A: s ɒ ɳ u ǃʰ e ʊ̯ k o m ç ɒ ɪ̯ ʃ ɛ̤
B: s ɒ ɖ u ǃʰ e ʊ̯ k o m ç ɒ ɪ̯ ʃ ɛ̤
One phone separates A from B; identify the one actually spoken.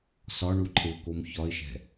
A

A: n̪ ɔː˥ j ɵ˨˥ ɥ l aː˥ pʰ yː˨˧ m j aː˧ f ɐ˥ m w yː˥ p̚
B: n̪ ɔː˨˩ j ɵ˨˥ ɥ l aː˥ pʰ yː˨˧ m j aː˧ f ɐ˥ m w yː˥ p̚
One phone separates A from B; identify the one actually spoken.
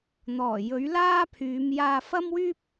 B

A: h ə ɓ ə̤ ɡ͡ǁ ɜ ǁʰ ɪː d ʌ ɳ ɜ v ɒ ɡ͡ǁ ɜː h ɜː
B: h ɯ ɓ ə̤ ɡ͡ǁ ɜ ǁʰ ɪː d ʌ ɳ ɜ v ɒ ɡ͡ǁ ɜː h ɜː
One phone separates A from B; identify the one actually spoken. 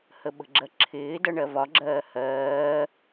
A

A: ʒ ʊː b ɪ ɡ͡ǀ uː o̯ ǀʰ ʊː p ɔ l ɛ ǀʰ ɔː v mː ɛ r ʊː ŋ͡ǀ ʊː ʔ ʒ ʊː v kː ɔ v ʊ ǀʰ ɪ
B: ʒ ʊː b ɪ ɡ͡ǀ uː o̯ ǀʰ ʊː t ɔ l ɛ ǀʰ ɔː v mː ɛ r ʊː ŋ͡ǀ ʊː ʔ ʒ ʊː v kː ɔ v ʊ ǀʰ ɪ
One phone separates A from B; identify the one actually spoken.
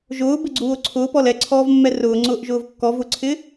A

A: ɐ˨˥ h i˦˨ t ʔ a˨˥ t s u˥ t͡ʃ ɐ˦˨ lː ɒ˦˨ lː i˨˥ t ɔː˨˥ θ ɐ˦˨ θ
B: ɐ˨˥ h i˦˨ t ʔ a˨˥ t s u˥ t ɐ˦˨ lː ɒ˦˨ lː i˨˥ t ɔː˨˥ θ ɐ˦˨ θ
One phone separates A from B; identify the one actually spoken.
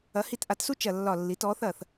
A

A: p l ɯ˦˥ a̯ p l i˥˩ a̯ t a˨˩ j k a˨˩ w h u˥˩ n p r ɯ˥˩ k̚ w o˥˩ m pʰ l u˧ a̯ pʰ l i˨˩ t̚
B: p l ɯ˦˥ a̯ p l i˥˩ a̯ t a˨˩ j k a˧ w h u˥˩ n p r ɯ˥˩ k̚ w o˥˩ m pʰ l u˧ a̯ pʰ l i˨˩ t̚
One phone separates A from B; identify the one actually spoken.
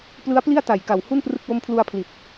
A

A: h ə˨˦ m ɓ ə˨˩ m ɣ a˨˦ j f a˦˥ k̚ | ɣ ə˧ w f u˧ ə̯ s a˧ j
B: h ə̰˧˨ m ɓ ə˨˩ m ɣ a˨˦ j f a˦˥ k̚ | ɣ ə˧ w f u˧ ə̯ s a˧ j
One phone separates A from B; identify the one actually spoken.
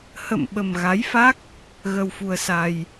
B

